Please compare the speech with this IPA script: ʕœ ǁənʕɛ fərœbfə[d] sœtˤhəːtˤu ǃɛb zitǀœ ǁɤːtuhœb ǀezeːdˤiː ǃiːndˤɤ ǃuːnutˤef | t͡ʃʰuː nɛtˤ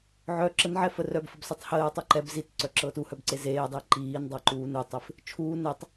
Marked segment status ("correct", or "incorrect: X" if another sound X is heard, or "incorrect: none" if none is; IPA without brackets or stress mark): incorrect: b